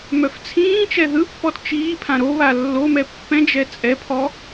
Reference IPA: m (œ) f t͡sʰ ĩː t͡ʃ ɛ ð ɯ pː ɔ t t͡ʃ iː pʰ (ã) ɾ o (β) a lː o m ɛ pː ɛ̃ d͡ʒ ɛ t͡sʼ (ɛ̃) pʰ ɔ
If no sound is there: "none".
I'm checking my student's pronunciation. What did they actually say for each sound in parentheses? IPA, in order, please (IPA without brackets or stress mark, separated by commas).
œ, ã, β, ɛ